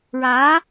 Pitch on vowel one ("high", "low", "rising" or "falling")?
rising